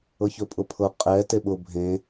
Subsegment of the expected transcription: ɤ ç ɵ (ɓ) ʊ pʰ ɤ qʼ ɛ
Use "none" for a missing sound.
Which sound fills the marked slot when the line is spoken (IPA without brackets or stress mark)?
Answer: pʼ